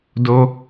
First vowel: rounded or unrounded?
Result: rounded